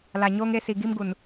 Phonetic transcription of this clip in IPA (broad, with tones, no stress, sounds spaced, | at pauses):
l a˨ ɲ oː˦ ŋ e˦ s i˨ ɡ i˦ m ɡ u˨ n